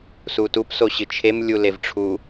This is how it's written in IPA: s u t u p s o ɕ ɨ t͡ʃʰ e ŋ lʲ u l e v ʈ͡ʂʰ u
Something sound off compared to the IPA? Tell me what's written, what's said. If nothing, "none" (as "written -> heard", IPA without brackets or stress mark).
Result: ŋ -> m